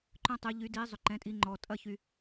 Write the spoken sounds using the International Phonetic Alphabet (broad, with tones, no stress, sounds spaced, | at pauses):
ǃ œ̃˦ tˤ y˩˧ ʎ y˩˧ d i˩˧ zˤ ʏ˩ ǃ ɛ̃˩˧ tʼ i˩˧ ŋ͡ǃ ɔ˩ tʼ ɐ˥˩ ç y˩